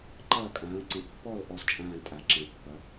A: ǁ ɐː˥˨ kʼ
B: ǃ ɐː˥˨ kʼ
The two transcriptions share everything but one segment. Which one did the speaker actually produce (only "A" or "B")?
B